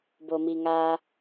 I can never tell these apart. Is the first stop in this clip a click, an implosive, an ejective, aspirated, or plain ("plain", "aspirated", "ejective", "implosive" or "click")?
plain